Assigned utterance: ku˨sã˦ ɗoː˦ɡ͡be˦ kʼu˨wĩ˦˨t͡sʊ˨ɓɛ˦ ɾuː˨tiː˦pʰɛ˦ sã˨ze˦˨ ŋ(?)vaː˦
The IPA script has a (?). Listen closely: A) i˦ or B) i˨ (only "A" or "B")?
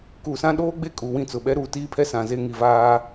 B